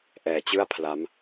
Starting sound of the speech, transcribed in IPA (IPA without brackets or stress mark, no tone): ʔ